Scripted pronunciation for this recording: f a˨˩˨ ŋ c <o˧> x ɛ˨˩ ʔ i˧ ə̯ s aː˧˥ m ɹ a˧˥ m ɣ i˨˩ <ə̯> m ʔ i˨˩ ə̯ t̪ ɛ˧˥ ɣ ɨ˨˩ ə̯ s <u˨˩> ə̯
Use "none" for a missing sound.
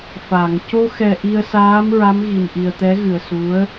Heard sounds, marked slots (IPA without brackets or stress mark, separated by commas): o˧, none, u˧˥